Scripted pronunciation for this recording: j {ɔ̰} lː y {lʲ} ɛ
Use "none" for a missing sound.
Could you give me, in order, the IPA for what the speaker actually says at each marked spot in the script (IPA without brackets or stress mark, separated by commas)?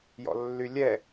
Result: ɔ̰, lʲ